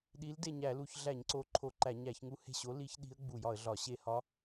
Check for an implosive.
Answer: present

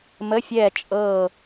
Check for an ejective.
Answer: present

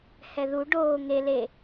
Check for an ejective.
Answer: absent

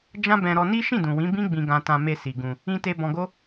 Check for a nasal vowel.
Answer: present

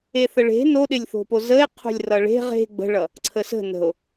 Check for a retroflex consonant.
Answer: present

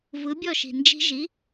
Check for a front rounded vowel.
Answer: absent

